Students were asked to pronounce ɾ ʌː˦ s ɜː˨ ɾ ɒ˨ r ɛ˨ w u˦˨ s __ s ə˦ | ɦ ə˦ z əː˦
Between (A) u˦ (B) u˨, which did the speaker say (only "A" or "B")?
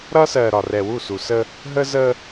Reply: B